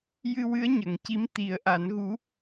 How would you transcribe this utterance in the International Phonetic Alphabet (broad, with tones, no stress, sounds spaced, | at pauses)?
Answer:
j ɨ˧ w ɨ˧˥ ə̯ ɲ ə˨˩˨ ŋ c i˧˥ m t̪ i˨˩˦ ə̯ ʔ a˨˩˦ n ɣ u˧˥